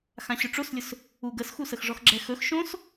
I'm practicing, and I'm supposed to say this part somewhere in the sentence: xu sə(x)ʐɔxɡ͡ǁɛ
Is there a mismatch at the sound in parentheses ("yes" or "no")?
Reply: no